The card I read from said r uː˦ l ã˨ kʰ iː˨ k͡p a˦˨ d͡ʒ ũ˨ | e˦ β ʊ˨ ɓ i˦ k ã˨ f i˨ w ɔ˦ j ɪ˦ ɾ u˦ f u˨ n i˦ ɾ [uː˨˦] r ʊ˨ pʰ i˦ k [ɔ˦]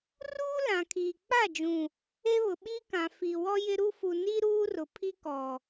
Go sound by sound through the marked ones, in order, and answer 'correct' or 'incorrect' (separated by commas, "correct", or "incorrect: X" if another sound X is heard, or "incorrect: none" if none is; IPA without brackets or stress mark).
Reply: incorrect: uː˦, incorrect: ɔ˨